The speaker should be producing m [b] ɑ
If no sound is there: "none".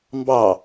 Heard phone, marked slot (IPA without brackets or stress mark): b